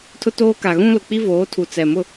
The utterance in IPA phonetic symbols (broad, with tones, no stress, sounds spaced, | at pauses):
tʰ ʊ˦ t oː˦ k a˨ ɣ ũ˦ l ʊ˨ k͡p i˦ v oː˨˦ tʰ u˨ t͡s ɛ˨ m ʊ˦˨